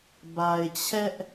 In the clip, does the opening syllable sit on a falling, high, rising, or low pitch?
low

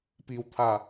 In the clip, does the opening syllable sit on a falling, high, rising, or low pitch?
low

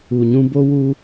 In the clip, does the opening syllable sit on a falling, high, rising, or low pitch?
low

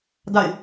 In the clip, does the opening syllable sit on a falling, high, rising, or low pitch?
falling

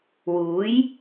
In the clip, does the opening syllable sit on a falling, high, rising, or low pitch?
rising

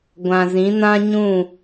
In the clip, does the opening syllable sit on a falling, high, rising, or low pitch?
low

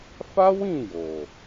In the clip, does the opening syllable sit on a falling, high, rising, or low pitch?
high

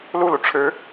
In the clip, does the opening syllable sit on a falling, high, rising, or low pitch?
falling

